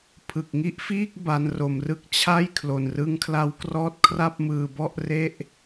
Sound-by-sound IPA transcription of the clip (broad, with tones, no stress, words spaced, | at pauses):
pʰɯ˨˩k̚ŋi˦˥ʔfiː˥˩k̚ ba˦˥nro˧mrɯ˥˩k̚ t͡ɕʰa˥˩j kʰlo˨˩nrɯ˦˥ŋkʰla˦˥wkrɔː˥˩t̚ kʰra˥˩p̚mɯː˧bɔ˥˩ʔre˥˩ʔ